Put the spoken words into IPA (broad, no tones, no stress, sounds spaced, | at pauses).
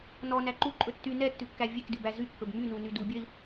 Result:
n ɔ n æ ǃ u ǃʼ ɵ tː y n ɛ tː ʉ kː æ vʲ e k d ʉ b æ z y kː ɵ b m y n u n y d u bʲ œ i̯